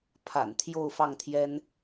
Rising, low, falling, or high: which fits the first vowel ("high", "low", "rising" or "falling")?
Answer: low